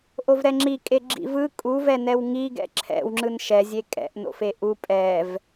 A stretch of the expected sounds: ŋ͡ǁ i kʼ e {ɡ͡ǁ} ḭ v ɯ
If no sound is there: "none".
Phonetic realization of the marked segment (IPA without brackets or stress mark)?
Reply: ɡ͡ǁ